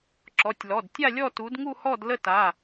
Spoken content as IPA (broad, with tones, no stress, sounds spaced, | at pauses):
ǁ ɔ˩˧˩ tʲ l ɔ˩˧˩ d tʲ a˥˧ lʲ ɔ˥˧ t u˨˦ d ŋ u˥˧ h ɔ˥˧ d l ə˥˧ t a˩˧˩